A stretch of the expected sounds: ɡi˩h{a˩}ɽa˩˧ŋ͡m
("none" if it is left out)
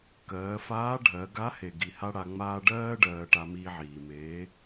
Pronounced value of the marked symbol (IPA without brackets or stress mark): a˥